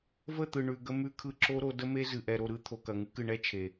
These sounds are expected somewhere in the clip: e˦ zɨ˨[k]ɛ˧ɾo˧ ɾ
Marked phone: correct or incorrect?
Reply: incorrect